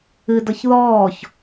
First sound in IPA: ɨ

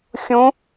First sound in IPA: xʲ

